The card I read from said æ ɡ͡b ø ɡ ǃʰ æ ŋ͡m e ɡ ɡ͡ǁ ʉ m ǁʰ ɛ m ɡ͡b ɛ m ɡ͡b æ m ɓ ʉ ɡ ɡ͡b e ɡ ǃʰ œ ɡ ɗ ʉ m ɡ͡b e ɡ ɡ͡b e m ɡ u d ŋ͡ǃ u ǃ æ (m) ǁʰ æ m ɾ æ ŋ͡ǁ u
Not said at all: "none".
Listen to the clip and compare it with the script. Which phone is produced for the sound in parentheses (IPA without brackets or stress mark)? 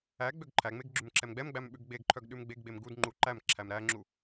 m